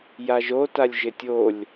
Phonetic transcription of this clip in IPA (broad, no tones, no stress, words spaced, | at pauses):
jaʒotalʲ ʒɪtʲolʲ